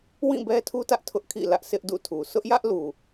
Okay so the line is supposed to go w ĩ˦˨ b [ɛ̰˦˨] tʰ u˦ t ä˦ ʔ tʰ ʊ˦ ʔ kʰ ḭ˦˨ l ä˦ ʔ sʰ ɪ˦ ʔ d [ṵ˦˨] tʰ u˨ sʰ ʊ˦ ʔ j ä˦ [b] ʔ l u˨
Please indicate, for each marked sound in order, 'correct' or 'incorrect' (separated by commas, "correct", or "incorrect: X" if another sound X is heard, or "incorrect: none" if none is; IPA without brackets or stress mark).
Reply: incorrect: ɛ˦, correct, incorrect: none